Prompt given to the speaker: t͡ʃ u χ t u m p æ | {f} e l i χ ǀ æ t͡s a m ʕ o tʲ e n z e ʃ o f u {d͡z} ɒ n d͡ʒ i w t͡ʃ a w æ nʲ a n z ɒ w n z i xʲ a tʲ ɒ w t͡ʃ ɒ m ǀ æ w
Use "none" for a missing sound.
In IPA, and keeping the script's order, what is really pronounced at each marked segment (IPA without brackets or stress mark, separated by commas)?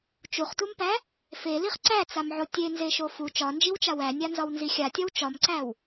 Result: f, t͡ʃ